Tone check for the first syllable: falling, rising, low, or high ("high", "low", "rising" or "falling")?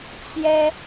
high